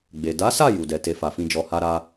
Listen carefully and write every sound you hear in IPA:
ɡ͡b e˨ d a˨˦ s a˦˨ j u˨ d ɛ˨ t e˧ f a˨ f ĩ˧ d͡ʒ ɔ˧ h a˦ ɾ a˦

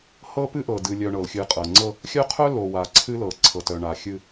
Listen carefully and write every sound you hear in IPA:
h ɤ˦ p ɨ˦ ʔ ɤ˨ d ɨ˨ lʲ œ˨ ɳ ɤ˨ l xʲ ɨ˨ qʼ ɤ˨ ŋ͡ǀ ɤ˦ | xʲ œ˦ qʰ œ˦ l o˨ w a˨ ǀʰ ɨ˦ l ɤ˨ ǀʰ ɤ˨ t œ˨ ɳ a˨ xʲ ɨ˦

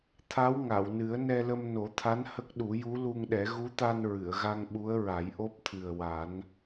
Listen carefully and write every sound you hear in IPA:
t̪ʰ a˧˥ w ŋ a˨˩˨ w n ɨ˨˩˦ ə̯ n ɛ˧ l ə˧ m n o˨˩˦ t̪ʰ a˧˥ n h ə˦˥ k̚ ɗ u˨˩˦ j u˧˥ l u˧ ŋ ɗ ɛ˨˩˦ ɣ u˧˥ t̪ a˧ n ɹ ɨ˨˩˨ ə̯ ɣ a˧ ŋ ɓ u˧˥ ə̯ ɹ a˨˩˦ j ʔ o˦˥ p̚ t̪ʰ ɨ˨˩ ə̯ w a˨˩˦ n

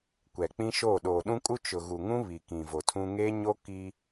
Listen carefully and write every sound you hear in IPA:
kʷ ɛ˨ k͡p ĩ˦ ʃ o˦˨ ɗ oː˨ ɗ ũ˦ kʼ u˦ t͡ʃ ʊ˨ ɣ u˨ ŋ ũ˦ β i˨ k ĩ˨ v o˨ tʰ ũ˦ ŋ eː˦ ɲ o˦ k i˦

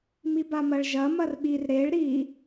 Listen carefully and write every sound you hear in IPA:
m i b a m ɐ ɭ ʒ ɐ m ɐ r ɓ i r ɾ e ɭ ɾ i

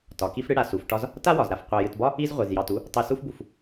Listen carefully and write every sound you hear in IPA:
t ɒ˩ k i˦ f ɽ ɨ˦ ɽ a˩ s u˩ f ʈ ɒ˦ z | t a˥ w ɒ˩ z ɾ a˩ f qʷ a˨ j ɨ˨ t b ɒ˥ | i˥ z ʁʷ i˩ z j ɑ˨ t u˦ | tˤ ɨ˨ s u˦ f b u˩ f

